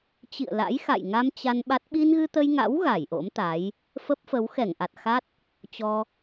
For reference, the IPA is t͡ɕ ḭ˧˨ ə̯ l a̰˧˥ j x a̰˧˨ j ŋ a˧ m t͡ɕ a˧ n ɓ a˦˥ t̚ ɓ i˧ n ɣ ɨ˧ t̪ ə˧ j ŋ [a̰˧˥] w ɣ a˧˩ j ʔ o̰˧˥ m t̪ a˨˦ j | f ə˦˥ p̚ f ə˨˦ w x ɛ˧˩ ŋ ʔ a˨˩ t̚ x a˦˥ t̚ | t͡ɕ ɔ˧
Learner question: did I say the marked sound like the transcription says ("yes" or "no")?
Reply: yes